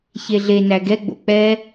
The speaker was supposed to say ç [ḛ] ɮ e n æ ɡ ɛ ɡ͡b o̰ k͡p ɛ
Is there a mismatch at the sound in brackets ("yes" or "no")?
yes